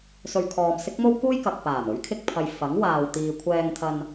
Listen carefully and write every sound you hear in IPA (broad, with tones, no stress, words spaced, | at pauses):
sɵ˨ɥkʰɔː˨m sɪ˥k̚mo˥wkuː˥j kɐ˨k̚paː˨˩m ɵ˨˥ɥkʰɪ˧k̚pʰɐ˨j fɐ˨˥ŋwaː˨w t̪iː˨kʷʰɛː˧ŋt̪ʰɐ˧n